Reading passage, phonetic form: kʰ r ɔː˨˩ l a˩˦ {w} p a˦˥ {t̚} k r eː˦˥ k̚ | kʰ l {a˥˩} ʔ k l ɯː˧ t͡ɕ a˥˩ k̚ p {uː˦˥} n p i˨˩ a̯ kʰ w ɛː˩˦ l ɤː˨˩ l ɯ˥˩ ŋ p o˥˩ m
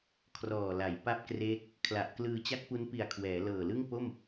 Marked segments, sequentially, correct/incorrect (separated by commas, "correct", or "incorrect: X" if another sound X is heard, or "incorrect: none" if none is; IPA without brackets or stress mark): incorrect: j, incorrect: p̚, incorrect: a˨˩, incorrect: u˦˥